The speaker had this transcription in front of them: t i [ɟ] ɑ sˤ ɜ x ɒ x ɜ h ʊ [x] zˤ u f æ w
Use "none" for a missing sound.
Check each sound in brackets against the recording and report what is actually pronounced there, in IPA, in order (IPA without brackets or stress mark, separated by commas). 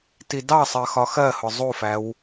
d, none